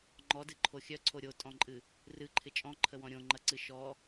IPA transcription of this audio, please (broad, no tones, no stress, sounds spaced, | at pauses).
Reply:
ŋ͡ǃ ɔ d ɨ ǃʰ o xʲ œ ǀʰ o ɾʲ o tʼ ɔ̃ ǃʼ ɨ | r ɨ ǃʰ ɪ t͡ʃʼ ɔ̃ ǃʰ ə w ɔ̃ ɾʲ õ ŋ͡ǃ ɐ ǀ ɨ ʃ ɔ